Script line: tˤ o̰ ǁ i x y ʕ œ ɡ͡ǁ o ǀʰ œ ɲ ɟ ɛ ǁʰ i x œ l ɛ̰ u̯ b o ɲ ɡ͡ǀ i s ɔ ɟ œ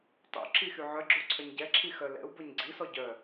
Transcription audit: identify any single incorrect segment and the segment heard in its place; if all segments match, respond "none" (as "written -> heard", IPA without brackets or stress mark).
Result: none